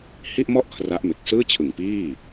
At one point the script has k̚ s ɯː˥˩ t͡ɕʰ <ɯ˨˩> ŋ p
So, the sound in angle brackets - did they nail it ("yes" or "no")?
yes